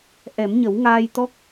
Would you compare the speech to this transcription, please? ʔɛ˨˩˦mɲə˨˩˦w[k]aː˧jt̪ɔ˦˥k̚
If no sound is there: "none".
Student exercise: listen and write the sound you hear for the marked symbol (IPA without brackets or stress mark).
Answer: ŋ